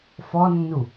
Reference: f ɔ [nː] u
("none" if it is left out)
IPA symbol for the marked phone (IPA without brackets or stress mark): nː